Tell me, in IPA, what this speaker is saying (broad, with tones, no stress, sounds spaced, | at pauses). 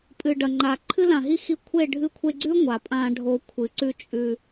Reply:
pʼ ɨ˨ ɖ ɐ˨ ŋ͡ǃ a˨ ǃʰ ɨ˧ l ã˨ ɦ i˧ x i˧ kʷʰ e˦˨ ɖʱ ɨ˧ kʷʰ e˧ ɡ͡ǀ ʉ˦ ŋʷ a˨ pʼ ã˧ ɖʱ o˧ kʷʰ ɨ˨˦ ǀ ʉ˦ t͡ʃʼ ʉ˧